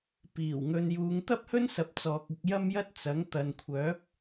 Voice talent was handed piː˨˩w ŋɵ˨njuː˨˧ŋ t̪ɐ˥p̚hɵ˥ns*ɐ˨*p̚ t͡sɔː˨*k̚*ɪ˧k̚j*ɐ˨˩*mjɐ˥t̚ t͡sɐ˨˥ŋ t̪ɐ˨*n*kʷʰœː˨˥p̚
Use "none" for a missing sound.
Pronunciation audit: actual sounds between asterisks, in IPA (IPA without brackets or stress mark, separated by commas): ɐ˨˥, k̚, ɐ˥, n